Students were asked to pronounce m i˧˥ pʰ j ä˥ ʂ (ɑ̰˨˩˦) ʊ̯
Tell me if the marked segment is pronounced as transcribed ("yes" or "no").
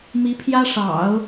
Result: yes